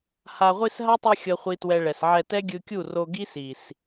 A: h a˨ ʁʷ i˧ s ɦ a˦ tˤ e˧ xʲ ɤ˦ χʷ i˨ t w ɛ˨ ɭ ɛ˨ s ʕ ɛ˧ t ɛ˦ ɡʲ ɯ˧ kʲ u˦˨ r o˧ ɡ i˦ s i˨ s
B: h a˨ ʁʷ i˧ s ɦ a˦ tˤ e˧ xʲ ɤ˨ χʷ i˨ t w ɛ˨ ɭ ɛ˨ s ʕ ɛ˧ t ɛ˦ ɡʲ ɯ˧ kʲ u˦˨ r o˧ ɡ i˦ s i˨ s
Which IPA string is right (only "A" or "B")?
B